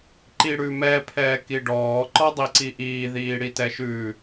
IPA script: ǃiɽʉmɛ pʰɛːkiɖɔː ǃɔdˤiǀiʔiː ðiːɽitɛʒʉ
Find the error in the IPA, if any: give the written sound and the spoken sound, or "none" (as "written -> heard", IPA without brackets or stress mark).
ʒ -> ʃ